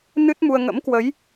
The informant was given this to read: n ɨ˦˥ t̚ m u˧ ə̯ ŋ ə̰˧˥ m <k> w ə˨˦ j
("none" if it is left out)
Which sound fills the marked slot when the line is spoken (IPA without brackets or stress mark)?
k